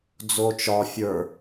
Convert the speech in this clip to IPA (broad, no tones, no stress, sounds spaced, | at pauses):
d͡z o t͡ʃ ɒ fʲ ə˞